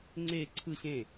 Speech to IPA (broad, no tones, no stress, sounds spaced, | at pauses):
ŋ͡ǀ eː ǀʰ ɯ ɕ ẽ